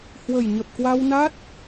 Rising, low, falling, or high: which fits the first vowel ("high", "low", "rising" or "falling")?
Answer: low